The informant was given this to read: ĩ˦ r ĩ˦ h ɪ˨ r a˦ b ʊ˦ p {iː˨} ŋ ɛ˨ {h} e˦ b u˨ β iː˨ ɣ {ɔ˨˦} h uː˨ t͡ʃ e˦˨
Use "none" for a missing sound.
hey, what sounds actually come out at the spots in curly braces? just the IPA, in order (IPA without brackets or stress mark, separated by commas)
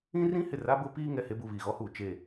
iː˦, h, ɔ˦